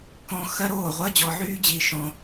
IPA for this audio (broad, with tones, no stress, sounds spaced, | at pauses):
k ɔ̃˧ x ɜ˦ ɾ oː˦˨ ʁʷ ɜ˦ d͡ʑ ɔ˧ ʕ yː˦ d͡ʑ i˦ ʃ ɔ̃˦